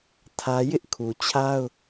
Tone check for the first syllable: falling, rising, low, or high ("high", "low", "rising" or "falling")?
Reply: high